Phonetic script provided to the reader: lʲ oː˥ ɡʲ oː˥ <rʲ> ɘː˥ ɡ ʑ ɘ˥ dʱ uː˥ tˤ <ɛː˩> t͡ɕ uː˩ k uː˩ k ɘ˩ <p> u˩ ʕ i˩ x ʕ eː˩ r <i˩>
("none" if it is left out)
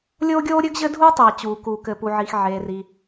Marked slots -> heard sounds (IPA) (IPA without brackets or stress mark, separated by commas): ɾʲ, eː˩, p, i˩